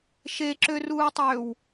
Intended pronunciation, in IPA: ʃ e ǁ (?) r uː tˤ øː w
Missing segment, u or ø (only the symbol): ø